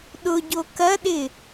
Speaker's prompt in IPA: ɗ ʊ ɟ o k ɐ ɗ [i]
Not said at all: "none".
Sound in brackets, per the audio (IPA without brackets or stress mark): ɪ